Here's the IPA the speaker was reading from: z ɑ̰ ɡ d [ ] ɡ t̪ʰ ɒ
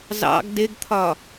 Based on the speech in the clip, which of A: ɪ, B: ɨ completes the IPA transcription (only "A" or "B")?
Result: A